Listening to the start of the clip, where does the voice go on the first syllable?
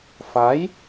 rising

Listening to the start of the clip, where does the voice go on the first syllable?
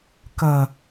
low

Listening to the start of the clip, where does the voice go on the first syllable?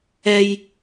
high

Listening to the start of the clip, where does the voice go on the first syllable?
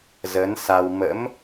rising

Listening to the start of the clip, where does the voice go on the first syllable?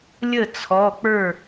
falling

